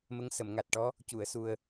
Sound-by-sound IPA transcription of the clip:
m ə˧˥ ŋ s ə˨˩˨ m ŋ a˨˩ t̚ ʈ ɔ˧˥ | c u˨˩˨ ə̯ s u˨˩ ə̯

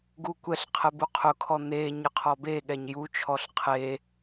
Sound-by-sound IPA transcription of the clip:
ɡ u kʷ ɛ ɬ qʰ ɛ b u qʰ ʊ kʰ ɔ n̪ e ɲ ɪ qʰ ɔ b e ɠ ɛ ɲ j u t͡ʃʰ ɔ ɬ qʰ e

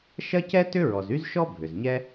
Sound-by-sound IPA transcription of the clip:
ʃ ɐ˥ c ɛ˥ t ʏ˥ ɹ ɔ˩ z y˥ z ʃ ɔ˥ bʱ ʏ˩ z ɲ ɛ˥

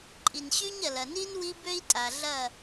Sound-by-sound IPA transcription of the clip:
ǃʼ i˨ n ɕ y˦ ɲ ɐ˨ l ɐ˨ n i˦ n w i˦ b ø˦ i̯ tʼ a˨ ɮ ɐ˦˨

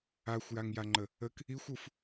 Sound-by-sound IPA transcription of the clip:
a xʷ j a ŋ j a ŋ͡ǃ ə | ə k | i xʷ u f

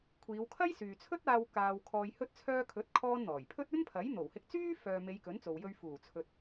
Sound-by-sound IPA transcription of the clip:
kʷʰ iː˨˧ w kʰ ɐ˥ j s yː˨ t͡sʰ ɵ˥ t̚ aː˧ w k aː˧ w kʰ ɔː˧ j h ɵ˥ t̚ t͡sʰ œː˥ kʰ ɵ˨˥ t̚ kʰ ɔː˥ n n̪ ɔː˨˩ j pʰ ɵ˥ t̚ ɵ˥ n pʰ ɐ˨˥ j n̪ o˨˩ w h ɪ˧ k̚ t͡s yː˥ f œː˨ m e˨˧ j k ɵ˨˥ n t͡s o˨ w j ɵ˧ ɥ f uː˨˩ t͡sʰ ɵ˨ t̚

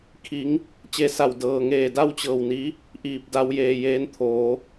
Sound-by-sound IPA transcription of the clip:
kʰ i˩˧ ŋ | t͡ɕ e˧ s a˧˩ w d ɤː˩ ŋ eː˧˩ d a˥˨ w t͡ɕ ɤː˧˩ w n i˧˥ | ʔ iː˧ p̚ d a˧˥ w j eː˧ j eː˧˥ n t̪ʰ oː˩˧

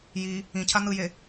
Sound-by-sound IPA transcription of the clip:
j i | ĩ cʰ a n̪ ɯ j e

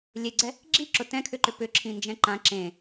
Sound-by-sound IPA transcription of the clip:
lʲ e ɡ͡ǀ ɛ | ɡ͡ǁ i ǁ ʊ t ɛ̃ kʰ ʏ ǃ ʏ p ʏ ǁʰ ĩ n d͡ʒ ɛ̃ ǃ ã ǁ ẽ

